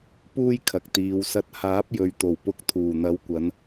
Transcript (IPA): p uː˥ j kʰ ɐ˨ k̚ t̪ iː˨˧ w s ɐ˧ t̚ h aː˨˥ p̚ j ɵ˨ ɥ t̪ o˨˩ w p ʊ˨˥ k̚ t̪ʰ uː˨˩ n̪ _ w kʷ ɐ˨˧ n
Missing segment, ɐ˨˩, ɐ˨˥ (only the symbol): ɐ˨˥